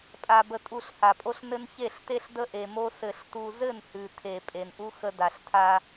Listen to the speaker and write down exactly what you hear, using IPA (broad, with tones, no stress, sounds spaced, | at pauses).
pʼ a˨ b ə˨ tʼ u˨ ɬ h a˨ pʼ o˦ ɬ n ɘ˦ n ç e˦˨ ɬ t e˦ ɬ d ə˦ ʔ e˨ m o˦ s ɘ˨ ɬ t u˨ z ɘ˦˨ n h ʉ˨ tʰ e˨ pʼ e˨ n ʔ u˦ x ə˦ d a˨ ɬ tʰ a˦